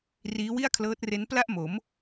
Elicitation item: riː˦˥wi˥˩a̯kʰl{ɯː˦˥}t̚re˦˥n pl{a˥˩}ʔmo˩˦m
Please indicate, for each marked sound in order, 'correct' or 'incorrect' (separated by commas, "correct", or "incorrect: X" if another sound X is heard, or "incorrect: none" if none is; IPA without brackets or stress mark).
incorrect: ɤː˦˥, correct